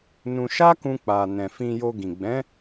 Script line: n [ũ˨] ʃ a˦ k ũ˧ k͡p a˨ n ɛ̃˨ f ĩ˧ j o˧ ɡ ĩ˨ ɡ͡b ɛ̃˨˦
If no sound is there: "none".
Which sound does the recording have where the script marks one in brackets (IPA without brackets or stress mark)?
ũ˧